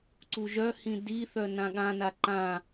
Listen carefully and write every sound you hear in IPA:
ǀuʒœhĩ diθœ nãɠãna ǃã

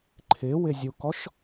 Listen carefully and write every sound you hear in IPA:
ǃʰɪwɪzʲukɔʃ

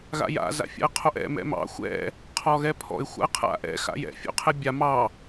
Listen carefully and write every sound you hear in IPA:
ɣa̰ja̰ za̰fʲa̰ə̯qʰoʔɛ̰ mɛ̰mɑ̰ xʷɛ̰ | qʰɔɣɛpʰɔ̰ɪ̯ xʷa̰ə̯qʰa̰ʔɛ̰ xa̰jɛ̰ fʲo̰qʰɛbʲa mɑ

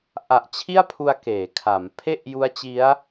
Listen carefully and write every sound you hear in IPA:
ʔa˨˩ʔ t͡ɕʰi˥˩a̯pʰu˧a̯ keː˩˦kʰa˩˦m pʰe˥˩ʔju˦˥a̯ t͡ɕi˦˥a̯

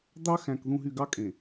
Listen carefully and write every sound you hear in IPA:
d̪ɑ˦xæ̃˨k ðũ˨ɦy˨ ɡɑ˦kʼẽ˨

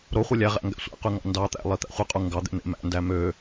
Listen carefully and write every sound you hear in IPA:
ɾoχʷɯ lʲæʁæ̰ ŋɡæ̰sʷæ̰qy ŋɑ̰ndɑt̪æ̰ lˠit̪æ̰χʷiqʼu ŋɡɑd̪ḛ n̪ḛmæ̰ndæ mø

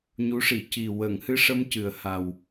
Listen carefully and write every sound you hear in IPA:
ɲu˧˥ʂi˨˩˨ ci˨˩ wəː˨˩˨ŋhɨ˧ʂə˧m cɨ˨˩ə̯ha˨˩w

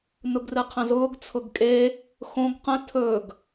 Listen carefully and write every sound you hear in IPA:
nʊɡrɨqʰə̃zʊːɡ t͡sʰʊɡkʼe | xõɡ qə̃ tʰɵɡ

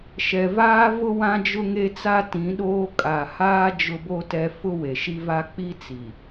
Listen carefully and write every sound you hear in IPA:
ʃɛ˨vaː˦ vʊ˦ wã˦d͡ʒʊ˦ŋe˦t͡sa˦ tĩ˨˦ɗoː˦ kʼa˨haː˦ d͡ʒʊ˦bo˦tɛ˦ fʊ˦we˨ʃi˦va˦ k͡pi˦ t͡si˨

